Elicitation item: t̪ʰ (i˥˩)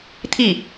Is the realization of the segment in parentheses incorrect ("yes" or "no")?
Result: no